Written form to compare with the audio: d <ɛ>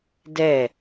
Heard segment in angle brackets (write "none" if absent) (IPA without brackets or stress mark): ɛ